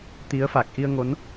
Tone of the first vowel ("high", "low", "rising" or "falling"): rising